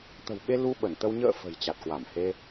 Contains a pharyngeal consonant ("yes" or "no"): no